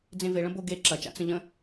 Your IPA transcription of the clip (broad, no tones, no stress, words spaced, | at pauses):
d͡zẽveɭə̃ boɡe ǁɐt͡ʃa̰ t͡sə̃ʎə̃